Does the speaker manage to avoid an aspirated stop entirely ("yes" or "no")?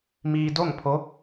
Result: no